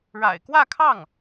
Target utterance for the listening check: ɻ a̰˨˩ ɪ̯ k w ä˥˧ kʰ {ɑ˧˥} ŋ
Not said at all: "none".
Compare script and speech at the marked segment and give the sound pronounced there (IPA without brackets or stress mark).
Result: ɑ˥˩